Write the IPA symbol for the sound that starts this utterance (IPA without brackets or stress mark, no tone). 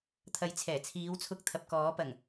t̪ʰ